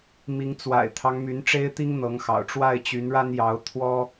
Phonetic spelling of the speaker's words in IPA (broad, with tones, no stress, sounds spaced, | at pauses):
m i˨˦ ŋ t͡s w a̰˨˩ ɪ̯ t̪ʰ ɑ˦ ŋ m y˨˦ n ʈ͡ʂ e˦ ɪ̯ t̪ i˦ ŋ n̪ ɤ˨˦ ŋ x ɑ̰˨˩ ʊ̯ ʈ͡ʂ w a˥˨ ɪ̯ t͡ɕ y˨˦ n ɻ a˦ n j ɑ˨˦ ʊ̯ t̪ʰ w ɔ˦